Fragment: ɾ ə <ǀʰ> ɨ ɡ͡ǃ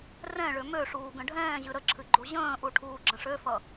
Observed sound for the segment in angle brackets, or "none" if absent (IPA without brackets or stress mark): ǁʰ